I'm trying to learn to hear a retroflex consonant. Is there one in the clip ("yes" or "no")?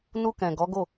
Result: no